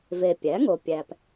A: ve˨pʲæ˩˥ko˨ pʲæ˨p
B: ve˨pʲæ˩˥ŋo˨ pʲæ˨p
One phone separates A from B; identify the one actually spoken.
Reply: B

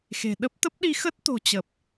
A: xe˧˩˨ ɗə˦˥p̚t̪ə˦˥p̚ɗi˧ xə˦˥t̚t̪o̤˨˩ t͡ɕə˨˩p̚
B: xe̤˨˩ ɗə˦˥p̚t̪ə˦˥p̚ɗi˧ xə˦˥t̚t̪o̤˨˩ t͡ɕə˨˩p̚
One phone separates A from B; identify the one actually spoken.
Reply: B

